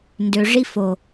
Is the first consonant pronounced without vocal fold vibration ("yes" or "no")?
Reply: no